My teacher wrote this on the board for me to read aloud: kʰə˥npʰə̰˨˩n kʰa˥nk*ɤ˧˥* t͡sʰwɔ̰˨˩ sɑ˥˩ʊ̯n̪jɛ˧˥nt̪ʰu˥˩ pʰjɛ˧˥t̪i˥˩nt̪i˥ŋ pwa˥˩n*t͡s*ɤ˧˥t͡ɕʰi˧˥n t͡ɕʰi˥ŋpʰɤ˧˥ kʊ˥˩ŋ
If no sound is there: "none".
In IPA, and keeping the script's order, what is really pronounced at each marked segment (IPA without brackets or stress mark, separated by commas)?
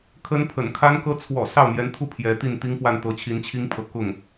ɤ˥, t̪